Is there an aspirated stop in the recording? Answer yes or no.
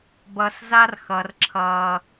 yes